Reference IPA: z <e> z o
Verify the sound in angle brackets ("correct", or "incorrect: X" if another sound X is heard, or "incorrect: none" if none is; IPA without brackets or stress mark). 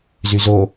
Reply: incorrect: y